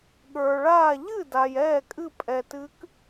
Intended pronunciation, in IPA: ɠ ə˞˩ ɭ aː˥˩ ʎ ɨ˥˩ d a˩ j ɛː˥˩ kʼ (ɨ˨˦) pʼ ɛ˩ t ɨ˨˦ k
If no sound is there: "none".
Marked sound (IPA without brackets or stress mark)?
ɨ˥˩